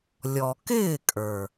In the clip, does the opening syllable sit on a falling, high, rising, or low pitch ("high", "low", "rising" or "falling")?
low